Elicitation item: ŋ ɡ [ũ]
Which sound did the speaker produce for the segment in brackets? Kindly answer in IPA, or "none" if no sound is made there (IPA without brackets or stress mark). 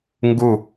u